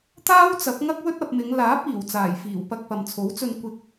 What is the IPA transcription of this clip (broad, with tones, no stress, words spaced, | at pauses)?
t̪aː˥wt͡sɐ˨˥p̚ ŋɐ˥k̚wɵ˥t̚ ɐ˧p̚mɪ˨˧ŋ laː˨˥p̚iː˨˩w t͡saː˨˩jfiː˨˩wpɐ˧k̚ pɐ˨mt͡sʰo˨˥wt͡sɵ˧n kʷɪ˧k̚